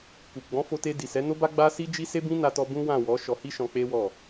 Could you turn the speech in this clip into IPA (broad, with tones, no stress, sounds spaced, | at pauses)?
k u˨ ɡ͡b ɔ̃˨˦ f o˧ t e˧ d i˨ s ɛ˨˦ n o˦ b a˦ ɡ͡b a˦ s i˦ d͡ʒ i˦ s e˦ b ĩ˦ n a˧ t ɔ˧ b ũ˦ w ã˦˨ w ɔ˨˦ ʃ ɔ˧ h i˦ ʃ ɔ̃˧ k͡p e˦ w ɔ˦˨